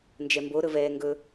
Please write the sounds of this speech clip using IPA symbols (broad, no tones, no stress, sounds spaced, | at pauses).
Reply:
n d͡ʒ ɛ m b o ɾ ɵ v ɛː ŋ ɡ ɵ